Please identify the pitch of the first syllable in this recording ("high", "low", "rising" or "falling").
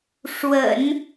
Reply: low